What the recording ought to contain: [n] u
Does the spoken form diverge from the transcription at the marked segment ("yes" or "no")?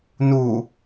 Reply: no